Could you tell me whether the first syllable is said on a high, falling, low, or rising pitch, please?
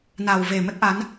low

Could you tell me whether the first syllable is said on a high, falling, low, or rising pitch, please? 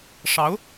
rising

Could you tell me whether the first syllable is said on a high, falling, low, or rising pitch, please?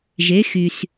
rising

